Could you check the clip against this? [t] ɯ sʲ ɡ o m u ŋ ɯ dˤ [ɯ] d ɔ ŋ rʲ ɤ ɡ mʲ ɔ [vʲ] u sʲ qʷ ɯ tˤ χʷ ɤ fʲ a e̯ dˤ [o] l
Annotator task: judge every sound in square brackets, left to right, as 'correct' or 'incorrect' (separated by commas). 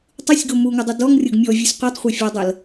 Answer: incorrect, incorrect, correct, incorrect